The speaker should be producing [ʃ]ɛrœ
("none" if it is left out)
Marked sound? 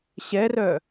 ɕ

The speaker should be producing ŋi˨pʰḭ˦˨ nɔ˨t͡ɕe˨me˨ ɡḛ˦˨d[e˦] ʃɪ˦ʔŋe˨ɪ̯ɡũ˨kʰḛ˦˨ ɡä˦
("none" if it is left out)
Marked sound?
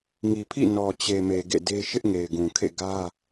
e˦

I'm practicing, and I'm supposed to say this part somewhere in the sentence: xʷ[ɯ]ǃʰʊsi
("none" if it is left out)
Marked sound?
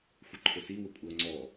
ə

